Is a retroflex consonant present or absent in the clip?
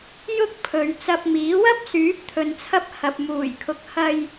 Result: absent